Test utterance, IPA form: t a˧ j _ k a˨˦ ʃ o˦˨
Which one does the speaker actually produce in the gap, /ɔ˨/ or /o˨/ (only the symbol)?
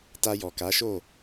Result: ɔ˨